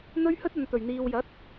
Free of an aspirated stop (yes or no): yes